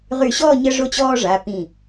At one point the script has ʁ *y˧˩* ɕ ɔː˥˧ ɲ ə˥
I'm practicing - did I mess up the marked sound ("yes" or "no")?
no